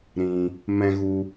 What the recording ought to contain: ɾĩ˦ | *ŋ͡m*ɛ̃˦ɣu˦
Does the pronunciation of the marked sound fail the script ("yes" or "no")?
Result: yes